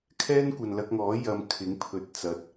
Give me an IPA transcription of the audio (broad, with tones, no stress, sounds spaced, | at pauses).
kʰ ɛː˥ n kʷ ɐ˨ n l ɐ˧ k̚ ŋ ɔː˨˥ j ɐ˧ m kʰ ɪ˨˥ ŋ pʰ ɵ˨ t̚ t͡s ɐ˨˥ t̚